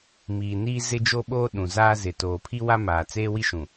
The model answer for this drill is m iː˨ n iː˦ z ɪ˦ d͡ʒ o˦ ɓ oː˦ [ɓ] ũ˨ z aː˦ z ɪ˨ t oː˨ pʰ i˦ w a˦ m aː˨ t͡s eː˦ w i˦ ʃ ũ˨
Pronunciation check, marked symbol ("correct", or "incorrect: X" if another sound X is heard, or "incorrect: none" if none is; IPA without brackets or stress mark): incorrect: ɗ